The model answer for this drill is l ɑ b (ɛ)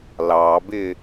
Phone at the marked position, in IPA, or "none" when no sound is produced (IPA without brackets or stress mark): ɪ